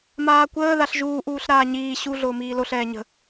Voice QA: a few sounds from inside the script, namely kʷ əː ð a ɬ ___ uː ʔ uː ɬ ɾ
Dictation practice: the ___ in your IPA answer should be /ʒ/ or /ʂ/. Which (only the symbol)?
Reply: ʒ